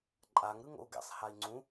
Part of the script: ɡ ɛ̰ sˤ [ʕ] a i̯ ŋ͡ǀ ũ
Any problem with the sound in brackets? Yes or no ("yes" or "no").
yes